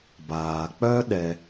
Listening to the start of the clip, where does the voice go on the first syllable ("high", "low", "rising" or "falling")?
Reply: low